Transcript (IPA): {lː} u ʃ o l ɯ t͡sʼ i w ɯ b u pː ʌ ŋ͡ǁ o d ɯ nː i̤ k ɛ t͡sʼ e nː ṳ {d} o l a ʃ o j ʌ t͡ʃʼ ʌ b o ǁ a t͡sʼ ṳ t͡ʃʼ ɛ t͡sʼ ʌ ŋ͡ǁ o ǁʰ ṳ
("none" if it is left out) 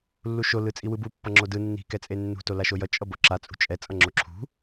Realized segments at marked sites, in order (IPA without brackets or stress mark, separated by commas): lː, t